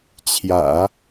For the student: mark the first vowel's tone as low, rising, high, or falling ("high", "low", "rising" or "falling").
low